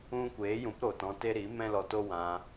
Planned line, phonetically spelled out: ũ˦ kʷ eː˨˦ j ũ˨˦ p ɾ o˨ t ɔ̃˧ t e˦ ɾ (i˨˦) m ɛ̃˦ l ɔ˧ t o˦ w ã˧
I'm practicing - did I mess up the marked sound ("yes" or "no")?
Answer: no